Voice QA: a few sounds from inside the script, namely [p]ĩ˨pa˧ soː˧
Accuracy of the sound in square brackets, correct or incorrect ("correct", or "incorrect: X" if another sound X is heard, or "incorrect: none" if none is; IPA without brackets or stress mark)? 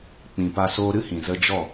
incorrect: k͡p